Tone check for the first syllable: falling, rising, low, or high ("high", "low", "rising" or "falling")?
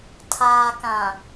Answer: low